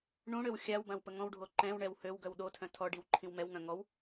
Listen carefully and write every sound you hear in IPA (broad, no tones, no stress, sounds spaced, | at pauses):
ɳ ũ ɽ ø w xʲ a w b ã w p ə ŋ ɔ̃ w ɖʱ o ǃ ɛ̃ w ɳ ɛ w h ø w ɡ œ w ɗ o tʰ œ̃ tʰ ɔ ɖ i w ǃʰ ĩ w m ɛ w ŋ œ̃ ŋ ɔ w